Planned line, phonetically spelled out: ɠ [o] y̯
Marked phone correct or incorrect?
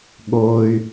correct